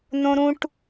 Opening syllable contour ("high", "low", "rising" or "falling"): high